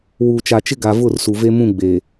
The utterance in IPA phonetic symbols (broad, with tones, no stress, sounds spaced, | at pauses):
w uː˨ t͡ʃ a˨ t͡ʃ ɪ˦ ɡ a˨ v ʊ˦˨ r s u˨ v e˦ m ũ˦˨ ɡ͡b eː˨